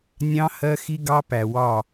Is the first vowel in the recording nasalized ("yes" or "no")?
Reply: yes